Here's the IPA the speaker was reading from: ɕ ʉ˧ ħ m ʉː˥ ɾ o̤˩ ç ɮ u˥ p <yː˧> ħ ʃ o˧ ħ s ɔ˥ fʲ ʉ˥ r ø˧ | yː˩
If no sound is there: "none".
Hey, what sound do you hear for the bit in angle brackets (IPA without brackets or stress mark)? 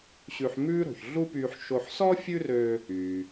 yː˧